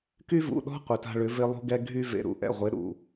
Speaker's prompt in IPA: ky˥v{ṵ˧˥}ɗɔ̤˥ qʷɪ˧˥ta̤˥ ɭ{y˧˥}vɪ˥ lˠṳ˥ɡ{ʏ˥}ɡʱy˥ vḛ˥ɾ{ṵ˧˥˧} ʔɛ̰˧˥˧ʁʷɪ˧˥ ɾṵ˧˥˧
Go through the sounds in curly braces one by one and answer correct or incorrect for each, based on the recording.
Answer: incorrect, incorrect, incorrect, correct

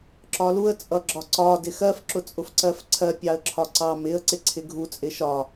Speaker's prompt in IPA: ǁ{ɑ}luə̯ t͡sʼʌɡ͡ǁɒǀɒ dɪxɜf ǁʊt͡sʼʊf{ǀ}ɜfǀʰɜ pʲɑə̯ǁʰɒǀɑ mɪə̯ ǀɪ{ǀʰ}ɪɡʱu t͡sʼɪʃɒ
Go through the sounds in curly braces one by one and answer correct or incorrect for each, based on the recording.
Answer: incorrect, correct, correct

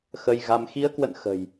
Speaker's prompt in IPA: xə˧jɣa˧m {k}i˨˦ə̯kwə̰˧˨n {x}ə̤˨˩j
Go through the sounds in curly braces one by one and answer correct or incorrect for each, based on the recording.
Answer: incorrect, correct

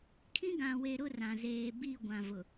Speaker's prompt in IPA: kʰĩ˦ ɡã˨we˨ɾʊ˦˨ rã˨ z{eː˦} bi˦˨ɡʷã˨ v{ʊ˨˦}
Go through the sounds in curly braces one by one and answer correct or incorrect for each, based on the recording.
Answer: incorrect, incorrect

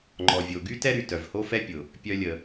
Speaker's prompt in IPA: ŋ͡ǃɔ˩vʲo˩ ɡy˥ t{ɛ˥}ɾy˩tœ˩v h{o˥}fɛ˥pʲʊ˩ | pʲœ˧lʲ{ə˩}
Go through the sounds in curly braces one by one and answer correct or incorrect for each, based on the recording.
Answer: correct, correct, correct

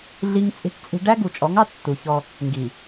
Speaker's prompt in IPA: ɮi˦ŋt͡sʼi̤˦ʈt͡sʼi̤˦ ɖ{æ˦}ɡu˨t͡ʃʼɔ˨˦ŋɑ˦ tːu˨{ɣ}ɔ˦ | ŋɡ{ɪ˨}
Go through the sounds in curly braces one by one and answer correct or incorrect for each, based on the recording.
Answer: correct, incorrect, incorrect

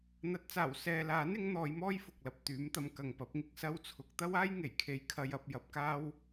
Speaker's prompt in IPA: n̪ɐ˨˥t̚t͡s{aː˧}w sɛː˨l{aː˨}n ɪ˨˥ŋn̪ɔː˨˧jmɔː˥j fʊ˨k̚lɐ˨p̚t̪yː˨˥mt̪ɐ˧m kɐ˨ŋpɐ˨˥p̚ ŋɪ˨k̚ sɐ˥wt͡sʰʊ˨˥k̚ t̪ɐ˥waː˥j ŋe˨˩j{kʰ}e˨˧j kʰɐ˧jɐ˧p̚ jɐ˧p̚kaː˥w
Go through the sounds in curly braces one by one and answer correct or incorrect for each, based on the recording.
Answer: incorrect, incorrect, correct

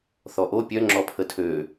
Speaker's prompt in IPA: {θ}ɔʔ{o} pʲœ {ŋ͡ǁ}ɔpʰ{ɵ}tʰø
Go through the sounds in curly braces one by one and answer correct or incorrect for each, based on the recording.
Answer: correct, correct, correct, incorrect

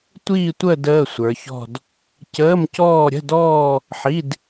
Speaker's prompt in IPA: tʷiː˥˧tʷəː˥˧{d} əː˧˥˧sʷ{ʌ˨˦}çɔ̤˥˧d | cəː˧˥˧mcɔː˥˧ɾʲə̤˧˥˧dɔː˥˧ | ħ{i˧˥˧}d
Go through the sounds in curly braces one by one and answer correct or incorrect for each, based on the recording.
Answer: correct, incorrect, correct

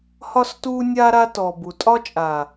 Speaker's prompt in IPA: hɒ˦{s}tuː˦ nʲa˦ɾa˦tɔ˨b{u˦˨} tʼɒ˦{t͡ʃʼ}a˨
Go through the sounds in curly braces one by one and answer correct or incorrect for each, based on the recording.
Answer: correct, incorrect, correct

